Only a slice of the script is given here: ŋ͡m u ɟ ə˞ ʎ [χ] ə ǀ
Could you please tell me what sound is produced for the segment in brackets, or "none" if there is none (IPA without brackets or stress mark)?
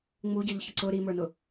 ç